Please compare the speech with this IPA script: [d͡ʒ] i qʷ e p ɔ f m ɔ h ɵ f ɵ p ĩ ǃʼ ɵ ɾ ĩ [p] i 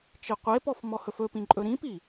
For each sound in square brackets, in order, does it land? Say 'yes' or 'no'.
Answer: no, yes

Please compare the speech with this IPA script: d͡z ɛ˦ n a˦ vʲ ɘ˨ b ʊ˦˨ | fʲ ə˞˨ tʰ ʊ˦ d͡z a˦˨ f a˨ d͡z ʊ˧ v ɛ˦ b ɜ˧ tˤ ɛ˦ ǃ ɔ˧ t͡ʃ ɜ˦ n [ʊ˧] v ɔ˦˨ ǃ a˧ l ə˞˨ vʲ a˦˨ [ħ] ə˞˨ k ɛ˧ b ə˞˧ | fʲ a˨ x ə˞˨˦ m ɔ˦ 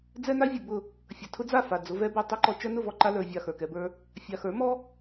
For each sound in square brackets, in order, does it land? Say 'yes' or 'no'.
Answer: no, no

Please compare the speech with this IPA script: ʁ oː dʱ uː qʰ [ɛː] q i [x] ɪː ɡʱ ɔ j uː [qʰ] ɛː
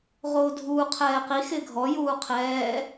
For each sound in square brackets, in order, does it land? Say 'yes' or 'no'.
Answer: yes, yes, yes

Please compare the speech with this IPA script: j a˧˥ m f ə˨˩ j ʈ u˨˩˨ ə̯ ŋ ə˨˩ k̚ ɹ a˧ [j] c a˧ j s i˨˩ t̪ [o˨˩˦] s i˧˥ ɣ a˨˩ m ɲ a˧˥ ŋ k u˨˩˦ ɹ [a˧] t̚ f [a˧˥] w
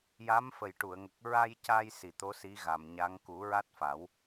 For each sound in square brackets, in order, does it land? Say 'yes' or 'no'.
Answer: yes, no, no, no

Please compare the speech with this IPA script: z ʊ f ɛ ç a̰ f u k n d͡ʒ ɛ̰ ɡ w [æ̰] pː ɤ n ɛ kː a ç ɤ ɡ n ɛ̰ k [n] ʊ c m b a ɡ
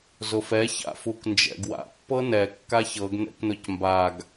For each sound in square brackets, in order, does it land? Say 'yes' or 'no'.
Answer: no, yes

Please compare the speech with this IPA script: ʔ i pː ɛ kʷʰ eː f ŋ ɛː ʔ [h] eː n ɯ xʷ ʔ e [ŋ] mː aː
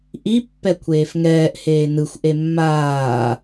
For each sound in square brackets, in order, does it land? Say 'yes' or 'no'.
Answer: yes, no

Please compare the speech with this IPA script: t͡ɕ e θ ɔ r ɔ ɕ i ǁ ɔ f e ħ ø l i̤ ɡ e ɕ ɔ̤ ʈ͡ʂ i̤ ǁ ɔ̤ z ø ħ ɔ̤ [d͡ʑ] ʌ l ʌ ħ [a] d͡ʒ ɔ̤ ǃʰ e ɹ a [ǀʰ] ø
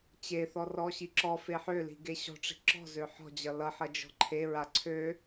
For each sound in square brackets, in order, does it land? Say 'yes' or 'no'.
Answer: yes, no, yes

